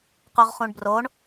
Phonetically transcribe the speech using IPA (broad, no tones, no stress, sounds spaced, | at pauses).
q u ʁ χ ũ ɳ b r o ɳ